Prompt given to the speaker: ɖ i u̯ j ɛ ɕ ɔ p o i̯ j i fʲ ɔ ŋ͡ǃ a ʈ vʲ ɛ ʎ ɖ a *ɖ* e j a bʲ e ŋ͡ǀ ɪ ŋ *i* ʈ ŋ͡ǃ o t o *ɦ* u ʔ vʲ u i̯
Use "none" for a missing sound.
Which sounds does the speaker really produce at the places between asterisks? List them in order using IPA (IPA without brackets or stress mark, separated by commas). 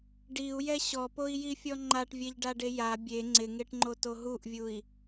ɖ, e, ɦ